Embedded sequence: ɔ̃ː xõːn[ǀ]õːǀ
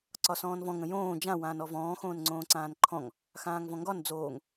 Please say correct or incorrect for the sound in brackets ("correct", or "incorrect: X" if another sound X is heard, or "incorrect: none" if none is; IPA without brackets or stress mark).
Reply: incorrect: ŋ͡ǀ